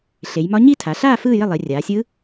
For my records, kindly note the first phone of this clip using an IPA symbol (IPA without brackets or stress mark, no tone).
ɬ